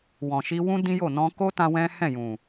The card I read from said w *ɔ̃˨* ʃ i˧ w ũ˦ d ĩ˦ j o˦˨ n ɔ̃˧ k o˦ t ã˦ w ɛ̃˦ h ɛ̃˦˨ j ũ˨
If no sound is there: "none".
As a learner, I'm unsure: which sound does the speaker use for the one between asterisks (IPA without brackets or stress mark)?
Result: ɔ̃˨